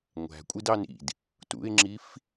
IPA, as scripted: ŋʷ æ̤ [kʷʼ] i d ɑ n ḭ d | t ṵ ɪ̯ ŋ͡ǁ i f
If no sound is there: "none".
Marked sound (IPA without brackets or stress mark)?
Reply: kʷʼ